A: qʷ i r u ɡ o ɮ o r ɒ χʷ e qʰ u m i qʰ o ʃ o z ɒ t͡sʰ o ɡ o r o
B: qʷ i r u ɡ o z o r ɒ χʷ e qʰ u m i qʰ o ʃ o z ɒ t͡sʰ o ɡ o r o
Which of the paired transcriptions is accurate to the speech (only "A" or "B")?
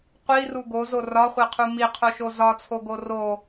B